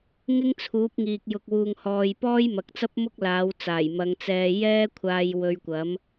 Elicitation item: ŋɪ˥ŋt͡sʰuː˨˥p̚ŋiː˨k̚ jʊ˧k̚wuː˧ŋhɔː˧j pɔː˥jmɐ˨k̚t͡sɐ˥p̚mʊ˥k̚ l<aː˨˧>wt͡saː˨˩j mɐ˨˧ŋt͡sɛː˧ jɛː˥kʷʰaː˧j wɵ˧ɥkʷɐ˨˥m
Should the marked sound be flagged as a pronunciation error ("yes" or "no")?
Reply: no